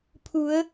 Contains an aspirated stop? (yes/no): yes